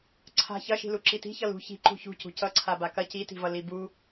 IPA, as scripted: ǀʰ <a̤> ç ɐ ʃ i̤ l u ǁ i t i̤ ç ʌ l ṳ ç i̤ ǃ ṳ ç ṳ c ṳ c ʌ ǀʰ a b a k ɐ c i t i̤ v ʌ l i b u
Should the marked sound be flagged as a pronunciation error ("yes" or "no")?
no